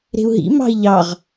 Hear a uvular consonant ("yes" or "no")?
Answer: yes